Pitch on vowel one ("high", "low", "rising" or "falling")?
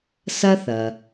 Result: high